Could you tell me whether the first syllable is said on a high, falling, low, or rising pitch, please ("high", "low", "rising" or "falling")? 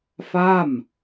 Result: falling